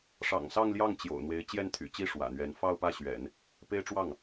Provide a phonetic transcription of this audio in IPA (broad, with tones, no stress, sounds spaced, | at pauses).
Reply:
ʂ ɑ̰˨˩ ŋ s ɑ˥˧ ŋ l j ɑ˥˩ ŋ t͡ɕ j o̰˨˩ ʊ̯ n̪ w e˧˥ ɪ̯ t͡ɕ j ɛ˥˩ n t̪ʰ y̰˨˩ t͡ɕ i˥ ʂ w ä̰˨˩ n̪ ɥ ɛ˧˥ n f ɑ˥˧ ʊ̯ p ä˥˩ ɕ ɥ ɛ̰˨˩˦ n | p e˥ ɪ̯ ʈ͡ʂ w ɑ˥˩ ŋ